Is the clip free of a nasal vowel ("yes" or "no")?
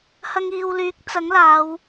yes